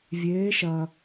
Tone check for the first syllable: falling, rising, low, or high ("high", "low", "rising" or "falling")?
rising